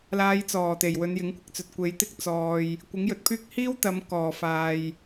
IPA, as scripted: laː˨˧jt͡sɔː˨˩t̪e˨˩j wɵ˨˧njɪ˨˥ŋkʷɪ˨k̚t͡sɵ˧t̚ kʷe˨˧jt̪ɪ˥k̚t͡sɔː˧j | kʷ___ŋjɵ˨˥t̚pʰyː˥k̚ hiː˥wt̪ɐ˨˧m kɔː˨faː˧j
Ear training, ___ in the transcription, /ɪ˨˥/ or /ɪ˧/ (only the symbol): ɪ˨˥